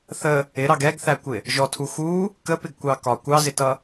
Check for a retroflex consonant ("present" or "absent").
absent